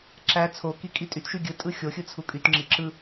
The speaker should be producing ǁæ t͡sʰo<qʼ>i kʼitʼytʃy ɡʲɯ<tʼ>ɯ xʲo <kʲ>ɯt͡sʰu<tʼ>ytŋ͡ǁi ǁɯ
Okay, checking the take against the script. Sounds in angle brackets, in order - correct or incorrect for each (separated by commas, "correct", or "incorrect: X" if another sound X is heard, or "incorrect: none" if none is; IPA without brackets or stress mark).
incorrect: k, correct, incorrect: xʲ, incorrect: kʼ